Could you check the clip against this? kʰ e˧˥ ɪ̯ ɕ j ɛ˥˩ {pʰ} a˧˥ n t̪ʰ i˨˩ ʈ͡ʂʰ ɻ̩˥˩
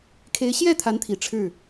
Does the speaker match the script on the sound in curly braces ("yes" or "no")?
no